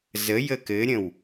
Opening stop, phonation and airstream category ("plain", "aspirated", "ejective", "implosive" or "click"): plain